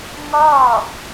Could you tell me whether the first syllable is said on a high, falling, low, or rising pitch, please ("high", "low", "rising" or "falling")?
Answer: falling